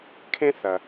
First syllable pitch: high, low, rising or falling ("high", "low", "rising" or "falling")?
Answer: high